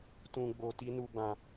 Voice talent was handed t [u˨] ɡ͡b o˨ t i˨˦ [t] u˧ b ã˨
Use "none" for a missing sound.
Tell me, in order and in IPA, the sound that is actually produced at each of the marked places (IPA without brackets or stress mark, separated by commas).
ũ˨, n